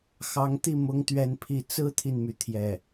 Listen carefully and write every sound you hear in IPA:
xɑ˧˥ŋt̪i˥˩ mʊ˥ŋt̪ɥɛ˥˧npʰi˥˩ t͡sɹ̩˥t̪ʰi˨nmy˩ t̪ʰjɛ˥˩

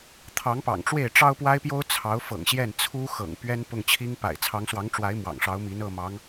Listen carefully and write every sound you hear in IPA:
t̪ʰɑ˧˥ŋpɑ̰˨˩ŋʈ͡ʂwe˥˩ɪ̯ ʈ͡ʂɑ˥ʊ̯pwa˥ɪ̯pjo˥ʊ̯ t͡sʰɑ˧˥ʊ̯fɤ̰˨˩ŋɕjɛ˥˩n t͡sʰu˥ xɤ̰˨˩ŋpɥɛ˥n pʊ˥˩ŋt͡ɕʰi˥ŋpa̰˨˩ɪ̯ t͡sʰɑ˧˥ŋswɑ˧˥ŋʈ͡ʂwa˧˥ɪ̯ mwɑ̰˨˩ŋʂɑ˧˥ʊ̯mi˧˥n ɤ˥˩mɑ˧˥ŋ

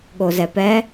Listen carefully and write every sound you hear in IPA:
ɠozɛpɛ

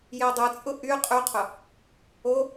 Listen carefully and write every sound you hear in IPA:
jedˤɯt͡sʼʊ ʔy qʼyqʰʊ | o

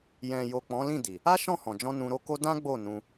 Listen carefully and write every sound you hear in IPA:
jɛ̃˨jo˨ k͡pɔ̃˨˦lĩ˦˨di˨ | a˦ʃɔ̃˦˨hɔ̃˨d͡ʒɔ̃˧ nũ˧ɾo˦ko˦ dã˦ ɡ͡bo˦˨nũ˧

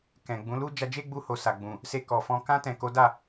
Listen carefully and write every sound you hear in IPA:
kɛ̃˨ɡ͡bũ˨˦lu˦ d͡ʒa˧d͡ʒe˦ɡ͡bu˧ho˨ sa˨ɡ͡bũ˨ | se˧kɔ˨fɔ̃˧ kã˧tɛ̃˨ ko˨˦da˦˨

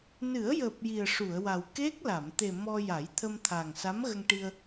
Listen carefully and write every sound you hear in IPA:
nɨ˨˩˦ə̯jəː˨˩p̚ ji˨˩ə̯ʂu˨˩˨ə̯wa˨˩w ke˦˥k̚la˨˩˨m t̪e˨˩ mɔ˧ ja˨˩˦jt̪ʰə˧mt̪ʰa˨˩ŋ sa˧˥mɣə˧ŋʈi˧ə̯

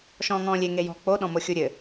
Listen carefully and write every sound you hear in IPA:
ʃɔ̃ːŋɔ̃ːlʲe ŋejɔ̤ k͡po ɗɔ̃moxʲuɾʲɘ

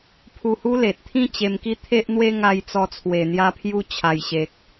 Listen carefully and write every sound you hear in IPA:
pʰu˧hu˦le˨t̚t̪ʰĩ˥˧ t͡ɕe˧mki˦t̪ʰe˦ʔn̪we˦ ŋa˧j t͡sɔ˧t͡sʰwe˨˩n̪ja˧pʰju˧ t͡ɕʰa˨˩jɕe˨k̚

